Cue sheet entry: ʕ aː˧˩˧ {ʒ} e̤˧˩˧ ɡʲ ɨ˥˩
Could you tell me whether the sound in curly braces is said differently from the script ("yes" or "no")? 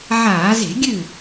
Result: yes